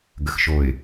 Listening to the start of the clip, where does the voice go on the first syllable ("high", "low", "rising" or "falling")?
low